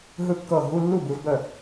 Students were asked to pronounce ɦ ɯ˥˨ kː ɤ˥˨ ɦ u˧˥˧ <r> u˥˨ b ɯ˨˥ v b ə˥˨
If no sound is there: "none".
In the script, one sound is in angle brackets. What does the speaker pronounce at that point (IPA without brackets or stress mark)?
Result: lː